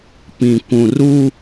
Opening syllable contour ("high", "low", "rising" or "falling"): low